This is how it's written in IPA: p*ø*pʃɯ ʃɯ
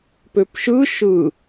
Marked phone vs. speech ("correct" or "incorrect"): correct